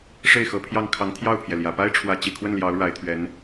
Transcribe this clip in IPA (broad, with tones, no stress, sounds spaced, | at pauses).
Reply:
ʂ e˥˩ ɪ̯ x ɤ˧˥ pʰ j ɑ˥˩ ŋ kʰ ɑ˧˥ ŋ t̪ʰ j ɑ˥˩ ʊ̯ pʰ j ɛ˩ l j ä˨˩ p a˥ ɪ̯ ʈ͡ʂʰ w ä˧˥ t͡ɕ i˨˩ kʰ w ə˥˩ n l j ɑ˧˥ ʊ̯ ɻ a˧˥ ɪ̯ t̪ʰ ɥ ɛ˧˥ n